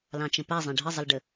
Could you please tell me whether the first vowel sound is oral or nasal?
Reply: nasal